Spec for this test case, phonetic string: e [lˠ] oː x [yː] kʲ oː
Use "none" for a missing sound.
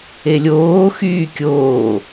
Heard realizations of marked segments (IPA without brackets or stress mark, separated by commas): lʲ, yː